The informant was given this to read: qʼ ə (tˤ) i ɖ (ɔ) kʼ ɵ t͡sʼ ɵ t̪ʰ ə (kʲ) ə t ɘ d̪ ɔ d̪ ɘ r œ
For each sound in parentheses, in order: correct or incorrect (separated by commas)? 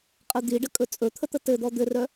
incorrect, incorrect, incorrect